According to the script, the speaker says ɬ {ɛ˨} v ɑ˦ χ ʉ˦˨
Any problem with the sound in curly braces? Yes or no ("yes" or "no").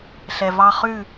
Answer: no